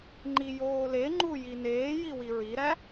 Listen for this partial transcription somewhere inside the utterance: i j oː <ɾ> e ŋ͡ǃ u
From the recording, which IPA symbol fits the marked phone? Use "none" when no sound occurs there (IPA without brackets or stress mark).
l